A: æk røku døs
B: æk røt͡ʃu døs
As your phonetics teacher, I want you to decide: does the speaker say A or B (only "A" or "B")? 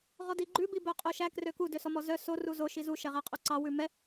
A